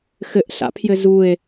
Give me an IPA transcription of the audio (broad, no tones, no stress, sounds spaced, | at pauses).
x ɘ ʔ ɬ a̰ pʰ j ɘ z u e̯